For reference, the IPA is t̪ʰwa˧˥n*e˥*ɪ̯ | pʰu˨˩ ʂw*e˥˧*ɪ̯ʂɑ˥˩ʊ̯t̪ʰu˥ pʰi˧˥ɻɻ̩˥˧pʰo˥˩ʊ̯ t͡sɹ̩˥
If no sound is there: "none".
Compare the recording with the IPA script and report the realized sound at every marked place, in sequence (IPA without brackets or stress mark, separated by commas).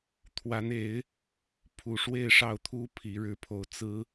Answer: e˧˥, e˥˧